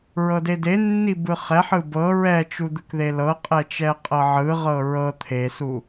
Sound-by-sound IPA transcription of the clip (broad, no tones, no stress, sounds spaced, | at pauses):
ɹ ɤ d e d e nː i b ɯ χ ɛ ħ ɯ b ɤ ɹ ɛ t͡ʃ u d̪ ɯ k ð e l ɤ qʼ ɛ t͡ʃ ɛ qʼ ɤ ʕ ɯ ʁ ɤ ɹ ɤ t̪ʰ e s u